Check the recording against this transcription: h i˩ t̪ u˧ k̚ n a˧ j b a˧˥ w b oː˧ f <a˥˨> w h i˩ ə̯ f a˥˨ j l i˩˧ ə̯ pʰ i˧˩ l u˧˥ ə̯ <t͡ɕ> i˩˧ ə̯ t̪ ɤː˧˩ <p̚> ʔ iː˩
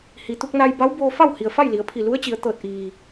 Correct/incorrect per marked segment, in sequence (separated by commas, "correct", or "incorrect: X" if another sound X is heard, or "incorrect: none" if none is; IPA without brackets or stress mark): correct, correct, incorrect: t̚